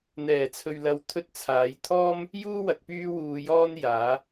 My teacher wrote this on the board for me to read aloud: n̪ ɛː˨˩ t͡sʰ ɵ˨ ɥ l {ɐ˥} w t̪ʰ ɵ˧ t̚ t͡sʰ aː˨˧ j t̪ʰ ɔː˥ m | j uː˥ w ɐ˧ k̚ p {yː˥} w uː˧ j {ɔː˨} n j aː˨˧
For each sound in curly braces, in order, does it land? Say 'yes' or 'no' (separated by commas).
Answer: no, yes, no